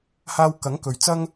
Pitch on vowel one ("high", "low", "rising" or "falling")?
low